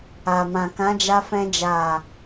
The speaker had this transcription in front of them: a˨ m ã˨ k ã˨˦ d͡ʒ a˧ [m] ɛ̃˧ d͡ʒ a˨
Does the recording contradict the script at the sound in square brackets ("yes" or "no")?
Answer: yes